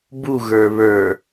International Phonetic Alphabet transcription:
b u ɣ ə˞ β ə˞

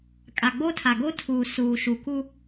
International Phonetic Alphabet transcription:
kʼ a˨ ɡ͡b o˦ tʰ a˨ ɡ o˦ tʰ uː˨ s uː˨ ʃ u˨ k u˦

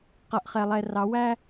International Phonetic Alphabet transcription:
q ʌ˨ ʔ χ ɛ˨ lˠ ɛ˨ r ɑ˨˦ w æ˦

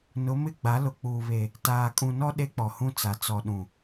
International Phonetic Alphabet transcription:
n ʊ˨˦ m ɪ˦˨ ɡ͡b a˨˦ l ʊ˨ k͡p uː˨ β e˨ | t aː˨ kʼ ũ˨ n ɔ˦ ɗ e˦ k͡p ɔ˨ h ũ˦ t͡s a˨ t͡s ɔ˨ ɗ ũ˨

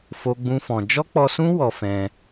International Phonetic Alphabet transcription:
f o˦ ɡ͡b ũ˦ f ɔ̃˧ d͡ʒ ɔ˦ k͡p ɔ˧ s ũ˦ w ɔ˧ f ɛ̃˧

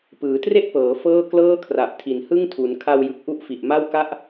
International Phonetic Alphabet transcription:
p ɯː˩˦ t r e˥˩ ʔ p ɤː˩˦ f ɤː˥˩ k l ɤː˥˩ kʰ r a˨˩ ʔ tʰ i˩˦ n h ɯ˥˩ ŋ tʰ u˩˦ n kʰ a˧ w j ɯ˨˩ k̚ ʔ u˥˩ ʔ f i˨˩ ʔ m a˥˩ w k a˦˥ ʔ

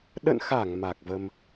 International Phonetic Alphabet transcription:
ɗ ə̰˧˨ n x a˧˩ ŋ m a˨˩ k̚ v ə˧ m

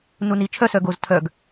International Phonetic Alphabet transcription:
n u n i t͡ʃʰ œ s œ ɡ o z tʰ œ ɡ

